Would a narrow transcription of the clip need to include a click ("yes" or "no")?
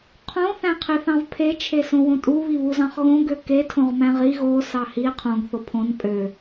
no